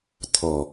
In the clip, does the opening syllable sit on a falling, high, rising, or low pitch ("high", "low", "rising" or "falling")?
low